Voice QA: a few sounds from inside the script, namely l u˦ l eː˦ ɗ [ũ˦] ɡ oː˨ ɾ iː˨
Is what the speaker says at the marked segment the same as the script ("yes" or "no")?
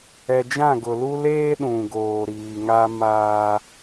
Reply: no